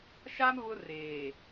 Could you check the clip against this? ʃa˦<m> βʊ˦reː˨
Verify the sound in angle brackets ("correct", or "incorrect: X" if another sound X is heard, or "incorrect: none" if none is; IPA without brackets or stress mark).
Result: correct